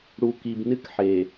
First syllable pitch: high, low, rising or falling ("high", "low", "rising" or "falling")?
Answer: low